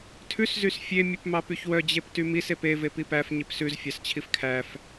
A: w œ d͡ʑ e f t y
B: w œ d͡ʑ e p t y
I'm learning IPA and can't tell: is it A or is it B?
B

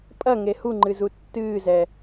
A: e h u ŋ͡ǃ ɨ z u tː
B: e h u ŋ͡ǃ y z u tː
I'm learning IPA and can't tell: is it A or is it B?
A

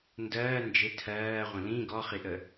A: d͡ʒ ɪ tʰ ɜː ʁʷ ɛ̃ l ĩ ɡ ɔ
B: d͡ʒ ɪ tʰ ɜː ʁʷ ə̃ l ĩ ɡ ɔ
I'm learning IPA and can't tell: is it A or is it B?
B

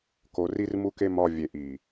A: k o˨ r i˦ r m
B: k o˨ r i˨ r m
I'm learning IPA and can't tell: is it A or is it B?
A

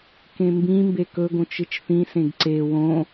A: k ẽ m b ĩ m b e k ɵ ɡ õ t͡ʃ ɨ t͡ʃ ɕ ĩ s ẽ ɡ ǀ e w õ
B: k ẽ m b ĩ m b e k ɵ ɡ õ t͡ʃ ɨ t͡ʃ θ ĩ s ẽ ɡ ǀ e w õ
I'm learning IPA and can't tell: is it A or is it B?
B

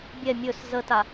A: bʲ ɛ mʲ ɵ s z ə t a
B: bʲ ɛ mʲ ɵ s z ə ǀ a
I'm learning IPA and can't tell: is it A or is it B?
A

